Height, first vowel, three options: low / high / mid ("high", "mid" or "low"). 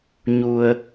high